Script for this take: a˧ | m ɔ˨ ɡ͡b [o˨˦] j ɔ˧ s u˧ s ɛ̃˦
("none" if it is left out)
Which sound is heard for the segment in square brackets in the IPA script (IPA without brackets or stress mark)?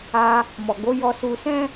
o˨˦